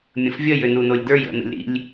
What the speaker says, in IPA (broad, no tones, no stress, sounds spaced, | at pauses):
mʲ ə̃ f vʲ ə j ʏ n u n o lʲ d ə˞ j ə̰ n ə̰ lʲ ɾ ḭ lʲ